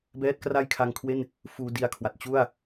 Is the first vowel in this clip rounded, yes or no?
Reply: no